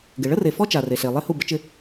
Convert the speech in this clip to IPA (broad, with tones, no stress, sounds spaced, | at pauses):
ɡ ɪ˨ ɭ ə˦ r e˨ f ɔ˦ t͡ʃ a˨ r e˨ ɬ e˨ lˠ e˦ h u˦˨ b ə˦ t͡ʃ ɪ˦